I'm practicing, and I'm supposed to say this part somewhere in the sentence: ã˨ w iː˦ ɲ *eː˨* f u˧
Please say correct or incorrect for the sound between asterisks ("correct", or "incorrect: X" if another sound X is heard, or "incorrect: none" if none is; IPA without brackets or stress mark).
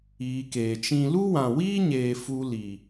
correct